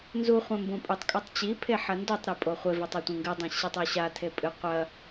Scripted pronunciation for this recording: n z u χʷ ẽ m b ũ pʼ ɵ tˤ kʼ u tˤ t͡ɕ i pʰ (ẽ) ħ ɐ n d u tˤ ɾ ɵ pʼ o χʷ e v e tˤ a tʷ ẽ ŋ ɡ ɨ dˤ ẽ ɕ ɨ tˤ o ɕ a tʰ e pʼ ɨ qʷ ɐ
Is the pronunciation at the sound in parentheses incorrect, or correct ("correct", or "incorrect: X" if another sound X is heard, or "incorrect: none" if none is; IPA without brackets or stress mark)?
incorrect: e